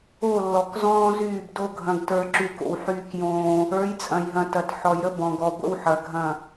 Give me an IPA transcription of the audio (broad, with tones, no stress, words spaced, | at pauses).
o˦˨lːɔ˨k zɔ̃ː˦zyː˦˨bdo˦ ɡʱɐ̃˦ɡtə˞˦ ǁy˦ko̰˦w ħyː˦kjõː˦ | ə˞˨˦jt͡sʼɐ̃˨jɦɐ̃˨ tɐ˨t ħɔ˨jɾə˦ bɔ̃˨ɡɔ˨ ɡʷə̰˦wħɐ˨ɡʱɐ̃˦˨